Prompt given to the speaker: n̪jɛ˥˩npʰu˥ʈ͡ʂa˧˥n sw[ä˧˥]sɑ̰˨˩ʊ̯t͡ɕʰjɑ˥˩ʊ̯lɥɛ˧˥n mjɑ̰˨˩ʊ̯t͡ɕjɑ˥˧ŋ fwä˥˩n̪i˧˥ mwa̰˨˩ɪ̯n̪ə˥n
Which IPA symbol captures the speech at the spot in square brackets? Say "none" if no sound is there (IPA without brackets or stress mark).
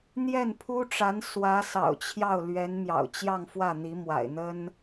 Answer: ä˧˥